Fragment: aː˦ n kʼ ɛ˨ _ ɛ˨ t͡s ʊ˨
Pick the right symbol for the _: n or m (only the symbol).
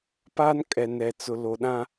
n